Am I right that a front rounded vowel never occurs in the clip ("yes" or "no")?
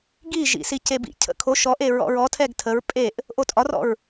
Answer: yes